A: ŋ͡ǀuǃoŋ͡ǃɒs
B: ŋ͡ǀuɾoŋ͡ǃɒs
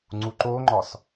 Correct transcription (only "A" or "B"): A